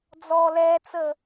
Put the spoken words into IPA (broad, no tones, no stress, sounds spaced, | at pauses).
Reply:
d͡z ɔ l ɛ t͡s ə